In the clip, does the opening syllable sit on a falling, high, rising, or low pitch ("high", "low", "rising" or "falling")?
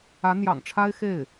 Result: rising